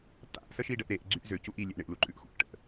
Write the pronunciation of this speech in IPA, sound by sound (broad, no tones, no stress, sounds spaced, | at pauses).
t̪ a̰ ʔ s ə ʃ i ɖ ə ʔ ɾ e ʔ ɡ͡ǀ y ʔ z ø c u ʔ i lʲ e ʔ ɳ ɪ ʔ l u ǃʼ ʉ ʔ x ṵ ʔ ʈ ə̰ ʔ